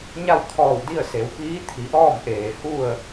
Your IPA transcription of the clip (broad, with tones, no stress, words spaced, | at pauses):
ɲa˥˨wt̪ʰɔː˧˩wdi˥˨ə̯ se˩˧wpiː˧˥t̪ʰi˩˧ ʔɔː˥˨mʔeː˩hu˥˨ə̯